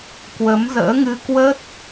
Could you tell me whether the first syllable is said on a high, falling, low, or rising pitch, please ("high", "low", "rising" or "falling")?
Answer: rising